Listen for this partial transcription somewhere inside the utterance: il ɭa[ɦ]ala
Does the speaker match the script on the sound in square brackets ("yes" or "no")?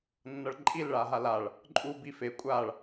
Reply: yes